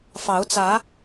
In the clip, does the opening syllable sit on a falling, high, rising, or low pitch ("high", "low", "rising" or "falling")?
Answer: rising